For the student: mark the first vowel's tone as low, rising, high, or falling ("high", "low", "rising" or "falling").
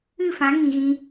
falling